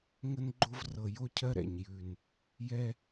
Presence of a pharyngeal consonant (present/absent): absent